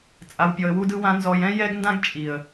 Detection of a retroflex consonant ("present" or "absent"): absent